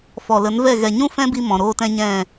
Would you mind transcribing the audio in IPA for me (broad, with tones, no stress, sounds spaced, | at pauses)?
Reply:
f ɔ˨ l ə˨˦ n v ɛ˦˨ ɣ ɛ˨ ɲ ũ˦ f ɛ̃˦ b i˧ m ɔ̃˨ ɾ oː˦ t ɛ̃˦ ɲ ɛ̃˦˨